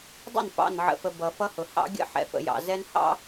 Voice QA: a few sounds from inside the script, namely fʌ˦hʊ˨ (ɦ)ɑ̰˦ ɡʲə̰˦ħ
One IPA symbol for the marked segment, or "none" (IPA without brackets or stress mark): h